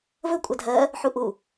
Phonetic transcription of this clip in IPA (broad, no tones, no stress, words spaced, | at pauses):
vɵ kʷʼadʱɜ | ħuʔu